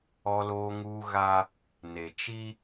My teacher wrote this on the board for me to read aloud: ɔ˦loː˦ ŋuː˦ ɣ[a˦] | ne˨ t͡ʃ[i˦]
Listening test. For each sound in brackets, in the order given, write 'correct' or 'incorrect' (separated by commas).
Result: correct, correct